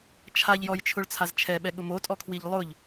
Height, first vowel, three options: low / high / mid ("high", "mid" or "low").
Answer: low